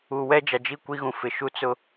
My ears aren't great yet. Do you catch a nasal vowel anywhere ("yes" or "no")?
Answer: yes